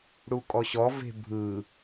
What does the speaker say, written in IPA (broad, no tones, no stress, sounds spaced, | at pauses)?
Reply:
ɽ u kʼ ɔ ɕ ɔ v e̤ bʱ ɯ